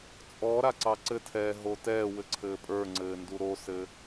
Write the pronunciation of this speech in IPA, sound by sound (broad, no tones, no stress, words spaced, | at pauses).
t͡sʼɔɾa ǀɑǀɘtʰɛː ɦotɛːwɘ ǀʰɘːpʼə˞ŋ͡ǀɘː nduɾosɘ